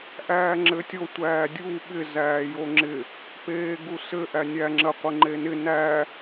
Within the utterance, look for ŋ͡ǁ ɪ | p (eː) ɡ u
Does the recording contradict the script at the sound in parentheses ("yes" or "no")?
no